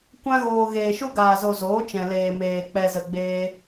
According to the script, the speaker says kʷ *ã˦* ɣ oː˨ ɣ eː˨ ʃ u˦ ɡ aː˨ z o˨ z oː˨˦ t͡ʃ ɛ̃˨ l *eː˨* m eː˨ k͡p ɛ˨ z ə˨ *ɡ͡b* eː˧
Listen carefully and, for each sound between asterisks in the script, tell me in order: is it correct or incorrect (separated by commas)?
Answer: incorrect, correct, correct